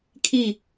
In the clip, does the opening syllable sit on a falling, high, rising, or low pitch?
falling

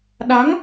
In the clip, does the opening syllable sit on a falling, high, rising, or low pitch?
rising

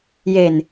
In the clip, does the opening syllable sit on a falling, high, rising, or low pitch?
low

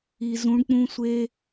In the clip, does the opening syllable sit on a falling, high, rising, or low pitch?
low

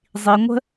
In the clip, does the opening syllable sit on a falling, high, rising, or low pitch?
low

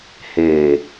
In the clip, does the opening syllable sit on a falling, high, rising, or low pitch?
low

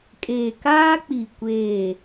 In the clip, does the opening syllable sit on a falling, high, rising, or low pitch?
low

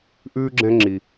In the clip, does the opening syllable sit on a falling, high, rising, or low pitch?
high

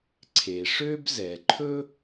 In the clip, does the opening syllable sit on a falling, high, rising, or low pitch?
low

